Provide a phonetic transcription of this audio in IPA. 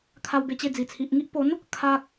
kʰa˧wbe˧t͡ɕe˧ d͡zi˨˩t͡sʰi˨ʔŋi˦ʔ po˨˦n | kʰa˦k̚

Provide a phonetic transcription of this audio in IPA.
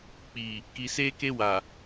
k͡pi˨ | ki˨seː˦ke˦ wa˨

